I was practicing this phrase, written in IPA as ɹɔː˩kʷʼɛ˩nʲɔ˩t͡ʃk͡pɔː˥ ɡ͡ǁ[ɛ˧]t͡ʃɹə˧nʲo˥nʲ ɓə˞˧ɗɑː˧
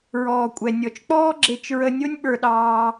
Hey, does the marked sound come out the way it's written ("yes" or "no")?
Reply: no